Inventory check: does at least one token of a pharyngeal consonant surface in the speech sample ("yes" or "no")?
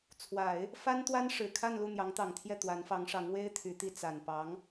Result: no